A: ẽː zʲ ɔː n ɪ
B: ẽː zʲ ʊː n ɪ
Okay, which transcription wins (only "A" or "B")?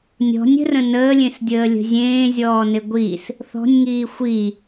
A